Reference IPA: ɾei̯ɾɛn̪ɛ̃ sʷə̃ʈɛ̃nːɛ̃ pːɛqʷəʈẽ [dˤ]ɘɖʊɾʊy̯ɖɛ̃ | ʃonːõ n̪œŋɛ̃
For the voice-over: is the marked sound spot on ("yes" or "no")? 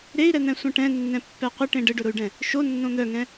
no